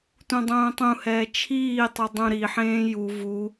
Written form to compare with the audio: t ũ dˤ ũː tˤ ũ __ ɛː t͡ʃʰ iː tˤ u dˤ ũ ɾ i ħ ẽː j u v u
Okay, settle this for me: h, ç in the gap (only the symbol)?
h